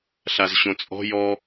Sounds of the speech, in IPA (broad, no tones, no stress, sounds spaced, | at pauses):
ɬ a z ɕ õ t͡sʼ ɔ̤ j ɔ